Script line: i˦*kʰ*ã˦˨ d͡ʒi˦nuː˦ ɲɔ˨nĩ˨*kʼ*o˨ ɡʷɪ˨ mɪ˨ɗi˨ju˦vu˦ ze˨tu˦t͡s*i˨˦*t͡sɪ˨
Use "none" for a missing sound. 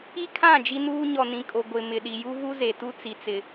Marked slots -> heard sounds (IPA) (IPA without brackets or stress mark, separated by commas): kʰ, kʼ, i˨